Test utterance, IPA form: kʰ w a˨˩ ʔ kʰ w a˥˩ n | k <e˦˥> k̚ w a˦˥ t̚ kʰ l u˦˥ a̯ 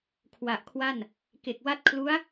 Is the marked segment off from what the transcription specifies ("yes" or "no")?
yes